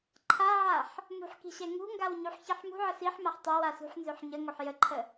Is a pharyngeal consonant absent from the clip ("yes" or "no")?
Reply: no